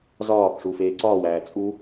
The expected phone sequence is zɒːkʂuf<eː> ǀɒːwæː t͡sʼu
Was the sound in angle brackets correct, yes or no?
yes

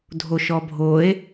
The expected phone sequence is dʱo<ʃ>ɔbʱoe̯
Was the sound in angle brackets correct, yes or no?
yes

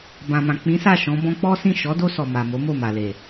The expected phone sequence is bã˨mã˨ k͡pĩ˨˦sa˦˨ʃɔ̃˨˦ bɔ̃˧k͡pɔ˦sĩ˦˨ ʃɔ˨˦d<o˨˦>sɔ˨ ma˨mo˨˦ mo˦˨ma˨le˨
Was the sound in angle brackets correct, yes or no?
no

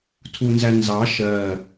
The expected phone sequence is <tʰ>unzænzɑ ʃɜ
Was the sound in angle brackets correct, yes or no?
yes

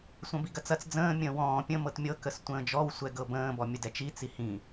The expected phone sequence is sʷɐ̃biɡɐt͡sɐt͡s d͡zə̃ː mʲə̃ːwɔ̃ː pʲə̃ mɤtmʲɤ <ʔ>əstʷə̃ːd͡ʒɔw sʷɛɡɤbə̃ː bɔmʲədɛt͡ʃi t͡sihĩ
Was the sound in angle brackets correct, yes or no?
no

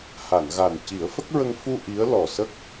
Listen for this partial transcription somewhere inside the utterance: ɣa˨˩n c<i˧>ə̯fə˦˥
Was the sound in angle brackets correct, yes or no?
no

